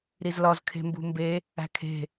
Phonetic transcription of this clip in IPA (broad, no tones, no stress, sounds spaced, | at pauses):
ɾ i z l ɒ z kʰ e̤ m b ṳ m b e | æ̤ kʰ e̤